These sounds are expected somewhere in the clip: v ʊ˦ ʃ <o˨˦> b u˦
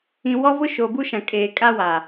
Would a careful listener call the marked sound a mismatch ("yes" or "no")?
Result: yes